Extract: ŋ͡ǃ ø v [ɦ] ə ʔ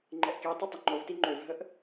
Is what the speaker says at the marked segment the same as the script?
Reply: yes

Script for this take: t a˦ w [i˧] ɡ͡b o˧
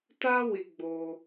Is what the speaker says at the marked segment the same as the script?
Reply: yes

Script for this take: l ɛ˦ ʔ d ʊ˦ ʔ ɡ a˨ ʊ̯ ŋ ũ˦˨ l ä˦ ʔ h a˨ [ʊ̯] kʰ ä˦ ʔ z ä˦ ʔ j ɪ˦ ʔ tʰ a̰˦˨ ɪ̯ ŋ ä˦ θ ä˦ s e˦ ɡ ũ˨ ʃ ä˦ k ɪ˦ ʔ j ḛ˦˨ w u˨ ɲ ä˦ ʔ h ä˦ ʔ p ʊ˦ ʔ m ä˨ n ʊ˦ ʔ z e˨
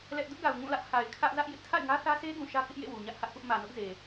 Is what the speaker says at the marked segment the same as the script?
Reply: no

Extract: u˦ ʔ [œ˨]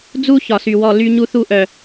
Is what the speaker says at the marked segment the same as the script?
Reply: yes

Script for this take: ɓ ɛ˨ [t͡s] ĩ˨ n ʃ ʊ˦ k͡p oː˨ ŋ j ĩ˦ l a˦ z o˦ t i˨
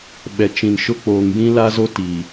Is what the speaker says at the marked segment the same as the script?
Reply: no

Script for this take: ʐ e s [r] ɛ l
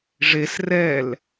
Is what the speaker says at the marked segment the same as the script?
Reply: yes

